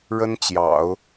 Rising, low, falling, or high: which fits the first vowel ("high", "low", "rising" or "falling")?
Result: high